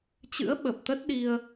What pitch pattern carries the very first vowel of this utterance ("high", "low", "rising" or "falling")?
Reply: rising